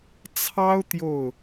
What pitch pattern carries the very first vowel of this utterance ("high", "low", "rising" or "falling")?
high